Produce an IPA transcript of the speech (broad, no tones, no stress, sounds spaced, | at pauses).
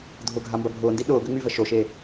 dʱ ʊ ɡʱ a m b ɐ bʱ ʊː n d i ɗ ʊː ɡ ø ŋ͡m y v ə ʃ o ʃ eː